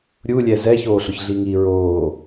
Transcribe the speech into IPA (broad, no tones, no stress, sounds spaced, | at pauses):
ɾʲ u lʲ ɛ z ɛ ç oː ɬ ʊ ç ɮ i ŋ i ɹ oː